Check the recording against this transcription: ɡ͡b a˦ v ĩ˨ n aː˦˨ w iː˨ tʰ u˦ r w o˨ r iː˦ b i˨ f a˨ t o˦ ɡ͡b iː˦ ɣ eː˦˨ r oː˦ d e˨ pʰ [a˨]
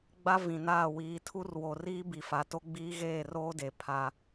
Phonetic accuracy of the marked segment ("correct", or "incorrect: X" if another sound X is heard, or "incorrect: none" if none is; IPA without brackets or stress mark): incorrect: a˦